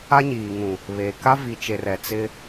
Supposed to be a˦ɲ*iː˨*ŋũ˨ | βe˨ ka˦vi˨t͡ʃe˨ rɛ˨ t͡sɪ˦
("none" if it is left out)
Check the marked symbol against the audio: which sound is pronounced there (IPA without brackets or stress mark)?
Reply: iː˨